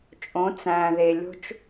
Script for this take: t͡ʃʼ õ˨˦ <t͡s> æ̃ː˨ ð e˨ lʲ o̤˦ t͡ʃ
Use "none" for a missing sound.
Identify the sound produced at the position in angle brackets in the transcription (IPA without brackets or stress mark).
t͡s